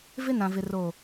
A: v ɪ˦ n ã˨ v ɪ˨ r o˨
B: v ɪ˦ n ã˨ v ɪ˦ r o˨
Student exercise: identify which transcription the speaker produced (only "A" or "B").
A